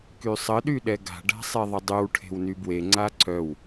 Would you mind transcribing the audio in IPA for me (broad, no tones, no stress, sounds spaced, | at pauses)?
k y sˤ ə ɗ y ɗ ɛ ɡ a̤ ɖ a̤ sˤ e ðˤ ə dˤ y w ʈʰ e̤ w n y b w e ŋ͡ǀ a ǀ œ w